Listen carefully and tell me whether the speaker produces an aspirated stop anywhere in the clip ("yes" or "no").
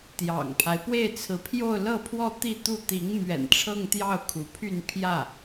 yes